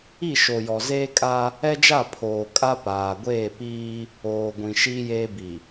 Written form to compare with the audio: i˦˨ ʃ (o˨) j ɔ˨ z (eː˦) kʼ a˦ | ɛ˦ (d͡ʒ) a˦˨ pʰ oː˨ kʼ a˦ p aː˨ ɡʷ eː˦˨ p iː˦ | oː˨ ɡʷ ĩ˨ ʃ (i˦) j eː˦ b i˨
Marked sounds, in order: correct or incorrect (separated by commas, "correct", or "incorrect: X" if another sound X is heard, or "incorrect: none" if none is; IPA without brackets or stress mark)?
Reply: correct, correct, correct, correct